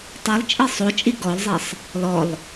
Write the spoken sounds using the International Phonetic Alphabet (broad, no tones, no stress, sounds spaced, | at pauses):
tˤ e lˠ t͡ʃʼ i sˤ o t͡ʃʼ i ɡ ɔ lˠ zˤ e sˤ | l ɔ lˠ